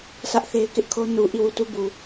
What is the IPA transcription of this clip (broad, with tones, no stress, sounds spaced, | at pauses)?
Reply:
sʰ ä˦ ʔ θ e˦ ɪ̯ k ɪ˦ ʔ kʰ o˦ n u˨ ʔ i˦˨ w u˦˨ t u˦ b u˨